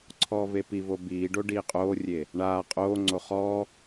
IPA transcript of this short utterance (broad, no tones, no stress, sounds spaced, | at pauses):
ǀʰ ɔː v e p i v o b iː ɖ o ɖ iː qʼ oː rʲ e | ɳ aː qʼ oː ŋ͡ǀ o χ ɔː